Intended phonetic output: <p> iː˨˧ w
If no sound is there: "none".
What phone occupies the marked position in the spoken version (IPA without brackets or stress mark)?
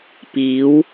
p